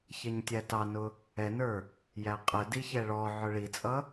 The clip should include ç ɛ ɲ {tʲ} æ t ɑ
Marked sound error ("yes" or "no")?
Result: no